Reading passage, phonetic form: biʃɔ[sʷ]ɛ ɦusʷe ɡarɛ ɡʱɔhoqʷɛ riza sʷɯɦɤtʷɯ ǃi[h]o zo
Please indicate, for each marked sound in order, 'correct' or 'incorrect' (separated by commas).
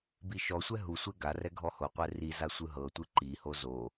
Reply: correct, correct